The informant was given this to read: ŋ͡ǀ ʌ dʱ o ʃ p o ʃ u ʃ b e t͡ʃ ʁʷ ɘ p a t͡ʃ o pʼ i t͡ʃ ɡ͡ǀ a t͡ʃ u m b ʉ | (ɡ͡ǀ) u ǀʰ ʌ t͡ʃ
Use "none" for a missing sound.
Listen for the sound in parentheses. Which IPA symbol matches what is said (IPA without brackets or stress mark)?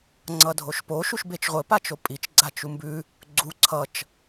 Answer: ɡ͡ǀ